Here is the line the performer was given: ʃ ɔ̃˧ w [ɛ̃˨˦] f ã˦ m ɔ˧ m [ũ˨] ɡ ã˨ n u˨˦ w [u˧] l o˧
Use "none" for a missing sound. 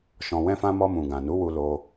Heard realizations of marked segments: ɛ̃˦, ũ˨, u˧

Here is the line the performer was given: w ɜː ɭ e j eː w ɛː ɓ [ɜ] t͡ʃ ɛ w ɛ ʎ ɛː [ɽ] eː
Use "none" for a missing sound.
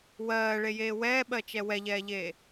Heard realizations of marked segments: ɜ, ʎ

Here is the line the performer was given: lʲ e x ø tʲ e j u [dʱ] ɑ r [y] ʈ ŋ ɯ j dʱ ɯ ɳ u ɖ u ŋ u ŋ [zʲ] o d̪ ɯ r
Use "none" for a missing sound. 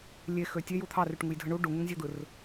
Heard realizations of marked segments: t̪ʰ, y, zʲ

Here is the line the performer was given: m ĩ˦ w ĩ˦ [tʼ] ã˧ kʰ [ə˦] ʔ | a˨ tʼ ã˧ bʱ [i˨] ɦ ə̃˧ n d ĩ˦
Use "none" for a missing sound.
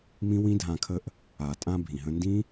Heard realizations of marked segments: dʱ, ə˦, ĩ˨

